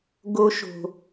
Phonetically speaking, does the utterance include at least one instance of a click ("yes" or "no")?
no